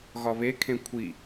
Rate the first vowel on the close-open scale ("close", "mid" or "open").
open